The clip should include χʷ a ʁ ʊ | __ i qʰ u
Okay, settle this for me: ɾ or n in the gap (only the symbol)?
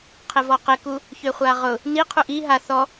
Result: n